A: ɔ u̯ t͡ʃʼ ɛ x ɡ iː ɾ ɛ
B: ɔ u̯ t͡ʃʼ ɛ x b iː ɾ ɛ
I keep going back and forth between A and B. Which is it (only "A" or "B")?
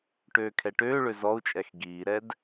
A